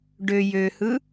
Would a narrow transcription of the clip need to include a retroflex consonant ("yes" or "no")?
yes